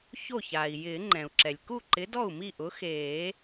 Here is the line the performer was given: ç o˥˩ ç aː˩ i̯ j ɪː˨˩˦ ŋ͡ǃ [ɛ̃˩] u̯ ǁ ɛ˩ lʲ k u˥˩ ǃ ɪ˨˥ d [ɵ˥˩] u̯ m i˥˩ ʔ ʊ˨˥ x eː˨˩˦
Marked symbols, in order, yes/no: yes, no

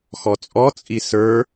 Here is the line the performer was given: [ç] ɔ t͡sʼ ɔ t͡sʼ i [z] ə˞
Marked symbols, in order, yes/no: no, no

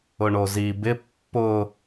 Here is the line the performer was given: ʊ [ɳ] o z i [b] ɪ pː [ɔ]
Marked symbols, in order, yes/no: yes, yes, no

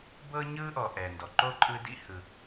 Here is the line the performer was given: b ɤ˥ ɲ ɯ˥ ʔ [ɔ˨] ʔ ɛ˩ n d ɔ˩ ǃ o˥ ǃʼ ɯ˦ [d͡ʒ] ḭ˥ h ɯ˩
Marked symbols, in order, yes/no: yes, no

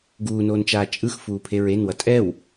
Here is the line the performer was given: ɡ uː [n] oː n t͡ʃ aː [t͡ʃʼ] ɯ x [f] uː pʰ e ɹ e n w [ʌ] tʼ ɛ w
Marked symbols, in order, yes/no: yes, yes, yes, yes

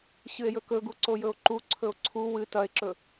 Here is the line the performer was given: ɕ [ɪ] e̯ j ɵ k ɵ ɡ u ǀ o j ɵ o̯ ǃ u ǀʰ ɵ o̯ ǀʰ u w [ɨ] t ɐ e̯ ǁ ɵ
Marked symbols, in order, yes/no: no, yes

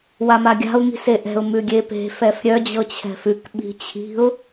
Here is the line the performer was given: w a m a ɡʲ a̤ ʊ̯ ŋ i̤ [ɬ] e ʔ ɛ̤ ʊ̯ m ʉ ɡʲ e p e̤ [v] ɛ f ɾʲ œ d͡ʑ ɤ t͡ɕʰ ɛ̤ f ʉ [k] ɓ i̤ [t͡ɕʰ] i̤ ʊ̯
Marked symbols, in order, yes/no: no, no, yes, yes

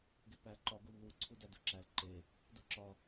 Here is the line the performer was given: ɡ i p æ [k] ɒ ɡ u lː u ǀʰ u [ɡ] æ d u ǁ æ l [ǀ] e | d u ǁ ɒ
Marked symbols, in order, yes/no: no, no, no

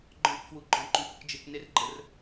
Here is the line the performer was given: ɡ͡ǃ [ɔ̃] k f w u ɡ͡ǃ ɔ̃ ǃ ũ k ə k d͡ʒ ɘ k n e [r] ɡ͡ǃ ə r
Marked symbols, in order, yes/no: yes, yes

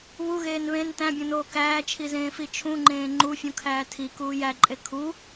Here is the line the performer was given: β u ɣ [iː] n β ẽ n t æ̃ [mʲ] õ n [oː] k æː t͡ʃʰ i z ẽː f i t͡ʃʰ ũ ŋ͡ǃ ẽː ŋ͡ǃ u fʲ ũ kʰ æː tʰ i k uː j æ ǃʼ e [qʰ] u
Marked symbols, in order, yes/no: no, no, yes, no

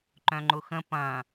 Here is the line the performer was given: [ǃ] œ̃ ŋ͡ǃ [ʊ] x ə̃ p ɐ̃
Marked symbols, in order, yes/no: yes, yes

